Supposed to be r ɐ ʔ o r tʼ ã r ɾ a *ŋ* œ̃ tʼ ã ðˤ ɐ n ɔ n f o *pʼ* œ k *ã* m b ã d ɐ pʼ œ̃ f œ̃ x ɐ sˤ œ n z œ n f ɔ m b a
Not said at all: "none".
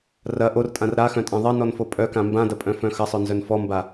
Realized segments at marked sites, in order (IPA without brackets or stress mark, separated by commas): x, pʼ, ã